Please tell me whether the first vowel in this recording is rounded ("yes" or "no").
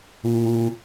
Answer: yes